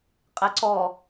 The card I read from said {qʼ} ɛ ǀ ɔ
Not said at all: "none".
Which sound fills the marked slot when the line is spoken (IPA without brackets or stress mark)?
qʼ